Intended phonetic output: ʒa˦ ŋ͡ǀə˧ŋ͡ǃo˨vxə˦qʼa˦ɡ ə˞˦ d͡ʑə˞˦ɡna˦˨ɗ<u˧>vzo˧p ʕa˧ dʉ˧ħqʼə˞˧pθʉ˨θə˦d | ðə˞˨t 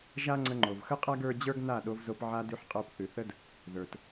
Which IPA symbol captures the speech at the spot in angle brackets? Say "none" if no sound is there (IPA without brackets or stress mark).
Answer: o˧